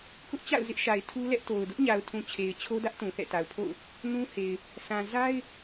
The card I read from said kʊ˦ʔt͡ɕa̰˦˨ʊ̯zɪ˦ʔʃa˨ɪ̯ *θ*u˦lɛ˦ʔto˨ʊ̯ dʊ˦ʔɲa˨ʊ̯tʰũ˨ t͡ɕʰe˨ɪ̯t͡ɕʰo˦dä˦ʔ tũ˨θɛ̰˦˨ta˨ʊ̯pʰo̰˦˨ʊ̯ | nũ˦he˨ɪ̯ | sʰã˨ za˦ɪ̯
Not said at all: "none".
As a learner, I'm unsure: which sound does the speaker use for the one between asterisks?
tʰ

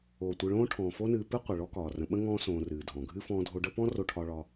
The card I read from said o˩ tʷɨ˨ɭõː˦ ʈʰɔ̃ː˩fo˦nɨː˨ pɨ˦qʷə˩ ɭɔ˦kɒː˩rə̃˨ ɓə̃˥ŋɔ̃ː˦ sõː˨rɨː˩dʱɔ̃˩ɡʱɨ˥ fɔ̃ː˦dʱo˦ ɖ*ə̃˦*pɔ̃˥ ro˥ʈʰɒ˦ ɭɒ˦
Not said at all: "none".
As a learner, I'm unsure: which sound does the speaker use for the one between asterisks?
ə˦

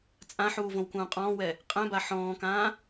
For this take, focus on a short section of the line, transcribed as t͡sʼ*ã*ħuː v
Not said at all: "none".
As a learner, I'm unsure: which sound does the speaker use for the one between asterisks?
ã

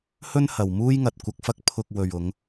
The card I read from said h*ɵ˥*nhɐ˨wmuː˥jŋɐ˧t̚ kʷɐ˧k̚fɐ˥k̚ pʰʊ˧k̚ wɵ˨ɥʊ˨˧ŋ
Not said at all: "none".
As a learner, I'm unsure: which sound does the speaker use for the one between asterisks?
ɵ˥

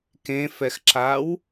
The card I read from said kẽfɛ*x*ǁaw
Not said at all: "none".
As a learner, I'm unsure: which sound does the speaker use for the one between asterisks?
x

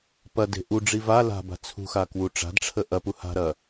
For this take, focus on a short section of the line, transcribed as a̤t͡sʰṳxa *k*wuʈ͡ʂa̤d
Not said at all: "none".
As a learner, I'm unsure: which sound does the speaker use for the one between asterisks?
k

